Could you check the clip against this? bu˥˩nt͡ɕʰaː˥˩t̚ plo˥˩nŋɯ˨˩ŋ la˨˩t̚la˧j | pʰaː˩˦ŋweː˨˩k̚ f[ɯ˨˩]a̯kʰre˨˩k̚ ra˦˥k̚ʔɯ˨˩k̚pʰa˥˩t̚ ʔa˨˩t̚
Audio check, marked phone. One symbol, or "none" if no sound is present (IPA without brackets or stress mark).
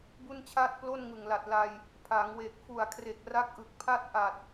u˨˩